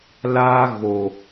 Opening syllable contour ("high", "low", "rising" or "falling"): high